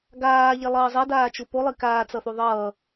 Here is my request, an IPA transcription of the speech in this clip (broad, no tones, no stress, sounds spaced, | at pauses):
ɡ aː ʎ ɛ lˠ ʌː zˤ ɛ d aː t͡ʃ u p o lˠ i k aː t͡s ʌ θ u ðˤ ʌː